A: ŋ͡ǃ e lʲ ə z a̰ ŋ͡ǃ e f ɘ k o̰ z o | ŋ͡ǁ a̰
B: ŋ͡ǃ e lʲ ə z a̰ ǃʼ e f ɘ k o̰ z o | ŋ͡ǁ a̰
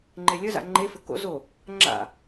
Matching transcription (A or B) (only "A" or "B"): A